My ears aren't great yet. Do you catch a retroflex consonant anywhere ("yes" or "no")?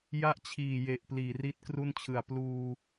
no